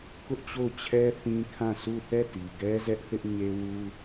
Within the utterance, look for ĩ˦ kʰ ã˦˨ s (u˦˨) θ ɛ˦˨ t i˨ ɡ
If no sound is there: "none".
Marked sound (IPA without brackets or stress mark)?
u˦˨